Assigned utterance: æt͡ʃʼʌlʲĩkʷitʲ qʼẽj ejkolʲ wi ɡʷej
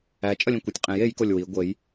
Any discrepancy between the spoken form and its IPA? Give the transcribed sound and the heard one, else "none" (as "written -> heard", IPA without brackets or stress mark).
none